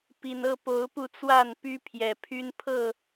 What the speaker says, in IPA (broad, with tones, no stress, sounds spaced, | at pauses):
p i˨˩ n ɤ˥˨ p o˨˦ ʊ̯ p u˧ t͡s w a˥˨ n p y˦ pʰ j ɛ˨˩ pʰ y˦ n pʰ ɤ˥˨